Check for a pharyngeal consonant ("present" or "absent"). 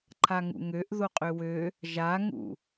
absent